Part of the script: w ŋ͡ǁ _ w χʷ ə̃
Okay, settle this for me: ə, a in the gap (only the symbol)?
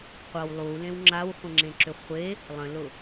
a